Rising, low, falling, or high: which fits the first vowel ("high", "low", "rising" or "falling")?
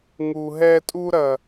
low